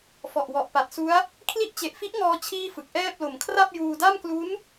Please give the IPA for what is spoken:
f ɔ˨˩ ʔ w ɔ˨˩ ʔ p a˨˩ t̚ s u˦˥ a̯ | kʰ l i˦˥ ʔ t͡ɕ e˨˩ ʔ f i˦˥ ʔ ŋ ɔː˧ t͡ɕʰ iː˥˩ f ɯ˨˩ k̚ ʔ ɛː˥˩ p̚ l o˩˦ m kʰ r a˥˩ p̚ j uː˧ d a˥˩ m k l u˦˥ n

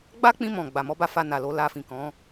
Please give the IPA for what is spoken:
ɡ͡b a˦ k͡p ĩ˧ m ɔ̃˨ ɡ͡b a˨ m ɔ˨˦ b a˧ f a˧ n a˨ l o˧ l a˧ f ĩ˨ k ɔ̃˨˦

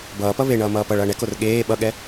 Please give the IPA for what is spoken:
b ʌː p ʌ β e ɳ ʌː m ʌː p ʌ ɭ ʌː ɳ ɛ k o r ɠ eː ɓ ʌ ɠ ɛ

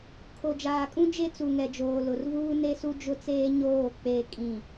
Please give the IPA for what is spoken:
kʰ o˨ d͡ʒ aː˨ kʼ ũ˦ d͡ʒ e˦ t͡s u˨ ŋ ɛ˨ d͡ʒ oː˨ l ʊ˨ r v uː˦ n e˦ s u˦ d͡ʒ ʊ˦ t͡s eː˦ ɲ oː˦˨ k͡p e˦˨ kʼ ĩ˦˨

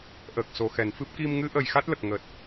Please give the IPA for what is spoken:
ʔ əː˨˩ k̚ s o˨˩ x ɛ˨˩˨ n f ɨ˦˥ p̚ k i˧ m ŋ ɨ˧˥ ʔ ə˨˩ j x a˦˥ t̚ l ə˨˩ k̚ ŋ əː˨˩ t̚

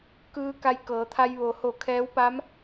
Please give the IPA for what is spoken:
k ɯː˧ k a˧ j k ɤː˩˧ t̪ʰ a˧ j ʋ o˩ h o˧˩ kʰ ɛː˧˥ w p a˧˥ m

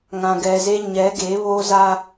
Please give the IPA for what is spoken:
ŋ ã˨ ɡ ɛ˨ z e˦ ɲ ɛ˨˦ ɡ e˨˦ β o˦ z a˦

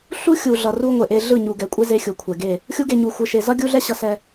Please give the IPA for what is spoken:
ɬ u˦ xʲ u˨ ɮ ʌ˨ r u˦ ŋʷ e˨ ʔ e˦ ɮ ɯ˦˨ ɲ u˨ ɡ ɛ˨ kʷʼ e˦ z e˦ xʲ u˨ kʷʰ ɛ˨ ɡ e˦˨ | xʲ u˦ ɡ e˦˨ ɲ u˨ xʷ ɯ˨ ʃ e˨ z ʌ˦ ɡʲ u˦ ɮ ɛ˦ ɕ ʌ˨ s ɛ˨

